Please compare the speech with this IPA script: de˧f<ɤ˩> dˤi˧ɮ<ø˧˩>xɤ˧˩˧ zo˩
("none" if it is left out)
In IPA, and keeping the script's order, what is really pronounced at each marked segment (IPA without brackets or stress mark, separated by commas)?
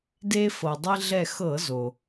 ɤ˩, ɛ˧˩